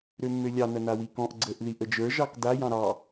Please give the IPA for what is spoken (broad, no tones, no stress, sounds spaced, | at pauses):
ɾ ø mː ø lʲ ɑ n ɐ n a w i k ɔ̃ ʔ ɡ͡ǀ ə ʔ ð i ʔ ə d͡ʒ ə˞ ʒ ɑ k d a j ɑ̃ ɾ ɑ